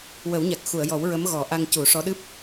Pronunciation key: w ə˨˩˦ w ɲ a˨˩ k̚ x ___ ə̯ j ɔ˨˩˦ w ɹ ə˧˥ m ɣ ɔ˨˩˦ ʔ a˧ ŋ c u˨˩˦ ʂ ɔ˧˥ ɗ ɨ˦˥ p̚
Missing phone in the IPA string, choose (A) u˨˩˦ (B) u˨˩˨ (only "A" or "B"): B